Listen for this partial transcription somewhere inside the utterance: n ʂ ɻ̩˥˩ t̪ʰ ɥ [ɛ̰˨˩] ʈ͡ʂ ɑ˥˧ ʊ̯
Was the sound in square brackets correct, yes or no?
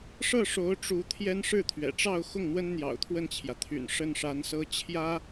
yes